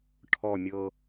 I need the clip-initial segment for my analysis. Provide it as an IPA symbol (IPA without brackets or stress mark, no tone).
ʈʰ